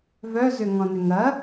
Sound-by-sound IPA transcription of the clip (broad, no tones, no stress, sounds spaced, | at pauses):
v œ z ʏ ŋ ɔ̃ n ʏ ŋ ɐ